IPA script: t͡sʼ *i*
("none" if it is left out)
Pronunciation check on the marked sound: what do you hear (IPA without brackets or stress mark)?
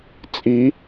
i